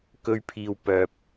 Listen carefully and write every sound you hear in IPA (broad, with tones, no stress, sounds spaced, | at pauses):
k ɵ˧ ɥ pʰ iː˨ w p œː˨ p̚